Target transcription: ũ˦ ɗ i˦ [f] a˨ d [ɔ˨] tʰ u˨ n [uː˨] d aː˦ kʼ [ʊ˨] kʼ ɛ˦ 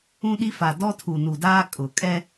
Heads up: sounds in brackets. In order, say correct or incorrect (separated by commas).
correct, incorrect, incorrect, correct